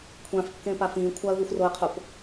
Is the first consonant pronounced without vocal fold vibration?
yes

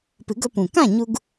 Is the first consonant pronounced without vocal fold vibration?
yes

